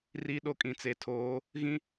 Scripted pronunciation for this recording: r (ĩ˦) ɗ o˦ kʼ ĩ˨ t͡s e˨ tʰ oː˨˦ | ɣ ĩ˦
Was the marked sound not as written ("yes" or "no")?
yes